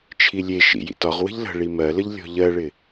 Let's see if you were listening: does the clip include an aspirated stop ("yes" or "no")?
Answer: yes